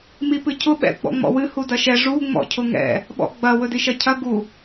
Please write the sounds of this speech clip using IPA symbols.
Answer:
m i p ɨ cʰ ʊ ɓ ɛ̰ ɡ͡b ɔ̰ ŋ͡m ɔ̰ w ɨ h u d ɐ ʃ ɛ ʐ u ŋ͡m ɔ̰ cʰ ʊ ŋ ɛ̰ | ɓ ɔ̰ ɡ͡b ɐ w ɵ d i ʃ ɐ cʰ ɐ ɡ u

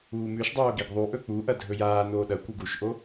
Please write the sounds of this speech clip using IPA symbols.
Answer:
uː m ʉ ʃ dˤ oː ɡ i ɡ ðˤ u ʔ ɵ k͡p u ʔ ɐ dʱ ɵ j aː n oː ɗ ɐ kʷ ɨ ɡ u ʃ ʔ o

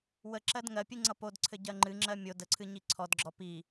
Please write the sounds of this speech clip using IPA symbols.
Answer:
w ə ǁ ɜ d ŋ ɜ pʲ ɨ ŋ͡ǀ ʌ p o d ǀʰ ɘ ɟ ɜ ŋ͡ǃ ɨ ŋ͡ǁ ɜ mʲ o d ə ǀʰ ɨ ɲ i ǀʰ ɔ d ɡ͡ǁ ɔ p i

